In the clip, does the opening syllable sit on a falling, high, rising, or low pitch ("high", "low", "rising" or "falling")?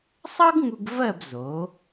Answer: high